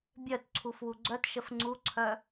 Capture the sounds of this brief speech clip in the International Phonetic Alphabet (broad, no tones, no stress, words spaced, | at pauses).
bʲœtǀʰuf wuɡ͡ǀœtʃəf ŋ͡ǀuǀʰœ